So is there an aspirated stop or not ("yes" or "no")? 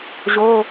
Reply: no